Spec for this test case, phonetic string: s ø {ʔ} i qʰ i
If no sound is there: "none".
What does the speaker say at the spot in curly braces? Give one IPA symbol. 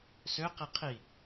q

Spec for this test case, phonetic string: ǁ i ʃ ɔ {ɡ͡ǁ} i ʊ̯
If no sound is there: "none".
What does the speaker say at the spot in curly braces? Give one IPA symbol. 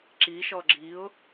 ɡ͡ǁ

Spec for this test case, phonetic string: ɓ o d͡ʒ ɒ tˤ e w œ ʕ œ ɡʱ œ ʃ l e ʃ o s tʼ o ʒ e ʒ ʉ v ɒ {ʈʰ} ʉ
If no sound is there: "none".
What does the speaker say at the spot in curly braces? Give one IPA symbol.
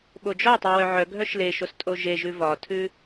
tʰ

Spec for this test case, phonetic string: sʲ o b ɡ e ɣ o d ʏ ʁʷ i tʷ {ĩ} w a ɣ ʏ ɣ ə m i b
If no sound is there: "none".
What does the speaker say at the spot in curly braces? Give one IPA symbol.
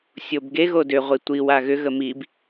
i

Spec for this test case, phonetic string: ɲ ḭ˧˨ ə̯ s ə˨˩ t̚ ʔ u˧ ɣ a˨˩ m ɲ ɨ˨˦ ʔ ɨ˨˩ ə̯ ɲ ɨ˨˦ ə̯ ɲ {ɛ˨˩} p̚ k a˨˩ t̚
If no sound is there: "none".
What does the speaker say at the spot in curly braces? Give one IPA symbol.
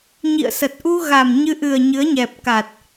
ɛ˨˩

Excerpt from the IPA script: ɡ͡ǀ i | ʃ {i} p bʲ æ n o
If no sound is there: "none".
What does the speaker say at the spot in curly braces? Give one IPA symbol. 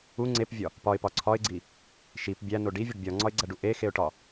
i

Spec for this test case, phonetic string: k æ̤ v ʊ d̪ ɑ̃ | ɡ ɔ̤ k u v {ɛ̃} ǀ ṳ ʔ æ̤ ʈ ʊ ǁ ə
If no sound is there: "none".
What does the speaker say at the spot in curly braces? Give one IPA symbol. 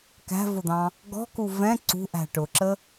ɛ̃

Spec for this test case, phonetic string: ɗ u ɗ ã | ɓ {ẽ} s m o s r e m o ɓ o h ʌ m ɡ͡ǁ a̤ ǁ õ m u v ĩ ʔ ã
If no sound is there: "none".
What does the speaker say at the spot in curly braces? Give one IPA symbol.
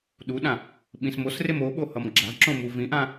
ĩ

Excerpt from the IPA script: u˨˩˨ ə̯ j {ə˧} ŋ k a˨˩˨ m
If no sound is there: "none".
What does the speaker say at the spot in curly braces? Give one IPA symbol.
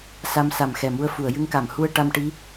ɨ˧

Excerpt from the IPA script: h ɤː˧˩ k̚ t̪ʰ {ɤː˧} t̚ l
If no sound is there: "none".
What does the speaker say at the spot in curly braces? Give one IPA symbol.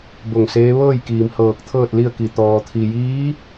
ɤː˥˨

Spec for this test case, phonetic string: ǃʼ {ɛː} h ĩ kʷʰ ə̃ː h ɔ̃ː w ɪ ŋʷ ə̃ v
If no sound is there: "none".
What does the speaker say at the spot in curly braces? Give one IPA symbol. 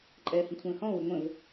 ɛː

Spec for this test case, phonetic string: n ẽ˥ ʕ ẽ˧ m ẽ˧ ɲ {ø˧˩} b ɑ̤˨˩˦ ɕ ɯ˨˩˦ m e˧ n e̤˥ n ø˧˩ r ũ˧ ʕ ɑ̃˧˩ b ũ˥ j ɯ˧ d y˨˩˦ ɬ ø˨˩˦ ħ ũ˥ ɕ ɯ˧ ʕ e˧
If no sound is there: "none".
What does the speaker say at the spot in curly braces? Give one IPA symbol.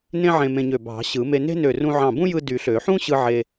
ø˧˩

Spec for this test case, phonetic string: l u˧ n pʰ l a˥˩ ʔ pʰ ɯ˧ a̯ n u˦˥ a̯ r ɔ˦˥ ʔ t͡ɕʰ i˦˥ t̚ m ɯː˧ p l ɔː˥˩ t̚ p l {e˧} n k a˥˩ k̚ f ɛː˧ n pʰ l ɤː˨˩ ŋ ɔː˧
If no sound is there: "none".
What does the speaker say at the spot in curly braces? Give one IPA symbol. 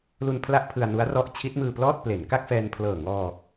e˩˦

